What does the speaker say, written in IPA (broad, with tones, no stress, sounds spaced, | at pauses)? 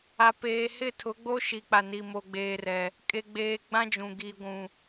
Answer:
a˨ p eː˨ h ɪ˦˨ tʰ ʊ˨˦ ɡ͡b o˦ ʃ i˨ k͡p a˨ n i˨ m o˨ ɡ͡b eː˨ r ɛ˨ | kʼ e˨ ɡ͡b eː˨ ɡ͡b ã˦ d͡ʒ ũ˨ ɡ i˨ ɡʷ ũ˨